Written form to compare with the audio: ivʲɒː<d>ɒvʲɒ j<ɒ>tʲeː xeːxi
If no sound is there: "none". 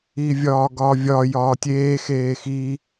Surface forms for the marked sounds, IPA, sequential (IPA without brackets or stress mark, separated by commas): ɡ, ɒː